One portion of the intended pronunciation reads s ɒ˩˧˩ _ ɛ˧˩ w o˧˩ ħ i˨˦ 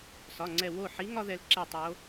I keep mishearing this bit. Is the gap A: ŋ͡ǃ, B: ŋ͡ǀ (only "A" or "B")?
B